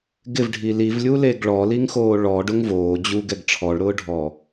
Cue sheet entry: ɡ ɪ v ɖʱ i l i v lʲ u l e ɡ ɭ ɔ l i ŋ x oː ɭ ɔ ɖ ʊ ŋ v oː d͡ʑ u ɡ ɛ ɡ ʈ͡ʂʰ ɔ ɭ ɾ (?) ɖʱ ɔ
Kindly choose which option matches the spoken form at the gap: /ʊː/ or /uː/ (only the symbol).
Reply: ʊː